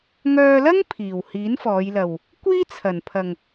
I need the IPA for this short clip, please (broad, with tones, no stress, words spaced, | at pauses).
ŋœː˧lɐ˥ŋ pʰiː˨˩w hiː˨˥nfɔː˨˧jlɐ˨w | kʷiː˥t͡sʰɐ˨˩npʰɐ˨ŋ